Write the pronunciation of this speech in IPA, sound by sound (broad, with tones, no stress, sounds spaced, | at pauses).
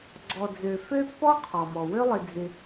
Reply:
ɡ͡ǀ ɔ˨ d͡z ø˨ f ø˦ pː ɔ˦ qʰ ɔ˩ m ɔ˩ w ø˦ lˠ ɪ˨ d͡z ɪ˨